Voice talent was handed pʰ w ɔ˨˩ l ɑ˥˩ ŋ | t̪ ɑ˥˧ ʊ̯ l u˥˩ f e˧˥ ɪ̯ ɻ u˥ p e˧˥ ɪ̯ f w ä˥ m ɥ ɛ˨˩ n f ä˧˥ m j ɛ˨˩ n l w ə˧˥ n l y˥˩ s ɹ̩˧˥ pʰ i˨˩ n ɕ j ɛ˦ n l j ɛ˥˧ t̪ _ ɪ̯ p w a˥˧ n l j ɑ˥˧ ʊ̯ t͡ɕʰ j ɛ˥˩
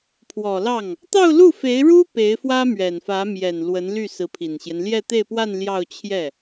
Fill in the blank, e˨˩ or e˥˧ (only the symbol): e˥˧